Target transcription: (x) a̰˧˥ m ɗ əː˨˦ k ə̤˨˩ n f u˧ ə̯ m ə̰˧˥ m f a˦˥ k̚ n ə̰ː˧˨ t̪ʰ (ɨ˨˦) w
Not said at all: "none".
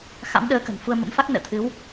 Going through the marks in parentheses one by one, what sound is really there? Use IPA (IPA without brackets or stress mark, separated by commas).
x, ɨ˨˦